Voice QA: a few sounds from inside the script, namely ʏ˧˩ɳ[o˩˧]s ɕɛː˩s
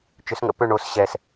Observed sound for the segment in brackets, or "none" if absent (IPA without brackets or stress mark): o˩˧